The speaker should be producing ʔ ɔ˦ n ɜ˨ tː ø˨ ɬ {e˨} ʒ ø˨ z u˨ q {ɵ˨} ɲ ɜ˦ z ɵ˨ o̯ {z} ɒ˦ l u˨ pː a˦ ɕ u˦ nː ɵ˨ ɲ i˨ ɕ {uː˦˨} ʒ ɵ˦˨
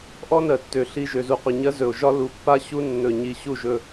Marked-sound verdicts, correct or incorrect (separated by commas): incorrect, correct, incorrect, incorrect